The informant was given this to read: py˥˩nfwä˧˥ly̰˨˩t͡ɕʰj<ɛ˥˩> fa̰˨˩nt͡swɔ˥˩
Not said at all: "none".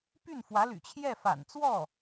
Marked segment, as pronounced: ɛ˥˩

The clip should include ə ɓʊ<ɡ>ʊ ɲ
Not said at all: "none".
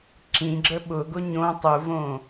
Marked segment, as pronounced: ɡ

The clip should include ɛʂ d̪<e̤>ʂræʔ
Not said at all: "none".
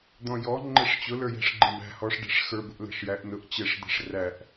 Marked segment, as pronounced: ɛ̤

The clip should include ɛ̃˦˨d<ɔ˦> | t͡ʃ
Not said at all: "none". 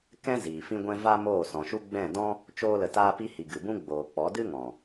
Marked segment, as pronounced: ɔ̃˦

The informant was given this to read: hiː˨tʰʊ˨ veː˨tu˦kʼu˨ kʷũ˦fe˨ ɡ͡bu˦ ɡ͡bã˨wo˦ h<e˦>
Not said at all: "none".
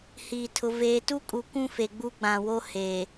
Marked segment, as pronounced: e˨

